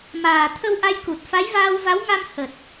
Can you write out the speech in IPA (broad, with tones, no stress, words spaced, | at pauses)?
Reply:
maː˨˩t̪ʰə˧wʔa˧jku˨˩t̚ fa˨˦jvaː˧wva˨˦wŋa˧m hə˨˩t̚